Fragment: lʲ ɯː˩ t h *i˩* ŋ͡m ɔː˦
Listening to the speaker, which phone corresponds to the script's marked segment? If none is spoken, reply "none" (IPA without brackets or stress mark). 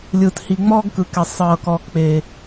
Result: i˩